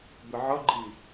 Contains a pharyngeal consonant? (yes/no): yes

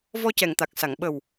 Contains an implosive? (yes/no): yes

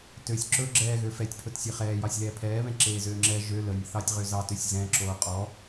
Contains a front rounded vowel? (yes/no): yes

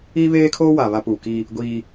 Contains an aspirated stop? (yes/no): yes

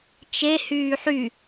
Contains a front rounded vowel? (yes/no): yes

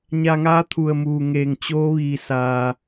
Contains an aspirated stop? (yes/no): yes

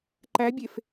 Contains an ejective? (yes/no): no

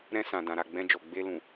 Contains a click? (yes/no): no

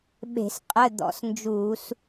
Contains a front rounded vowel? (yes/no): no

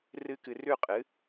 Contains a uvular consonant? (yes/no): yes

